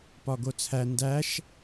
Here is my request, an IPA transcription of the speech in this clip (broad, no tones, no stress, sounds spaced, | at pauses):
p ɒ ɡ o t͡sʰ æ n d æ ʃ